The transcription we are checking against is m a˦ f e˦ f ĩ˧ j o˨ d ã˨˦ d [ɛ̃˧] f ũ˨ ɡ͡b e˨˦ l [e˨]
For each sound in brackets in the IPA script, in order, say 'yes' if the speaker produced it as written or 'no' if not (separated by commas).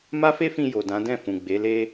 no, no